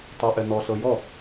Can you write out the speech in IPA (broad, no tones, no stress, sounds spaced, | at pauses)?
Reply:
tˤ a ʔ ɛ n ɔ ɬ ɤ j ɔ